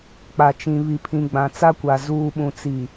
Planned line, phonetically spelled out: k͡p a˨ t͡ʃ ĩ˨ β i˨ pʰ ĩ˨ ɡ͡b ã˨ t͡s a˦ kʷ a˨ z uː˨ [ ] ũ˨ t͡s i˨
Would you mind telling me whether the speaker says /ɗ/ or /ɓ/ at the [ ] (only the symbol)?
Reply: ɓ